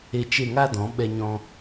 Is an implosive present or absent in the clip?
present